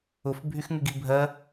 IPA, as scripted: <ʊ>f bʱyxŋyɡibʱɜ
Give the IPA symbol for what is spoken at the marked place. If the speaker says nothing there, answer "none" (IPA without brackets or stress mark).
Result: ʊ